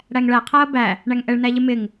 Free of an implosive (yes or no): yes